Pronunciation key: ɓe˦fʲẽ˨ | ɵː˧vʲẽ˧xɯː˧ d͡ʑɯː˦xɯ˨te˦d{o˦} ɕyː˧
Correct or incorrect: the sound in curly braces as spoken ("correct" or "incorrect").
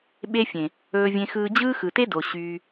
incorrect